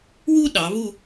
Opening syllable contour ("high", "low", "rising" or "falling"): high